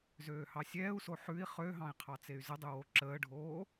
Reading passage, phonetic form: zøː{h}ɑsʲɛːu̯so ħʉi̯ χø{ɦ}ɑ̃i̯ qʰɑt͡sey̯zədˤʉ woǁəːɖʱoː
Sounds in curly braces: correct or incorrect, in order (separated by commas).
correct, correct